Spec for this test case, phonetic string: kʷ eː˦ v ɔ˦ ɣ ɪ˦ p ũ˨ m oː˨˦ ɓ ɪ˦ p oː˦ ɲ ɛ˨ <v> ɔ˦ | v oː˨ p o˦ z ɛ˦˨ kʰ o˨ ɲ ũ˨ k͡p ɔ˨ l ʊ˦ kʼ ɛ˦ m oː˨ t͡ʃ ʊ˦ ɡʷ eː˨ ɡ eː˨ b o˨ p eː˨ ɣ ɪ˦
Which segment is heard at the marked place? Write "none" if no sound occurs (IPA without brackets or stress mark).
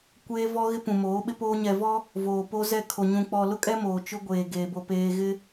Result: v